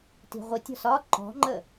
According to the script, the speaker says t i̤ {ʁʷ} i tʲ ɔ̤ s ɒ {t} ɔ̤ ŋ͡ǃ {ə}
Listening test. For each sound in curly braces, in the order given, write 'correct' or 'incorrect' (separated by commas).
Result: correct, incorrect, correct